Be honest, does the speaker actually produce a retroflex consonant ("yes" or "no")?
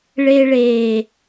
yes